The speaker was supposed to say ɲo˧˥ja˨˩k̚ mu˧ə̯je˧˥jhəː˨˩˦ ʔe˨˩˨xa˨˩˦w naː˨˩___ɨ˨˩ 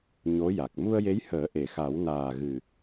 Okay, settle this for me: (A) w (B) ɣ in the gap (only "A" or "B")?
B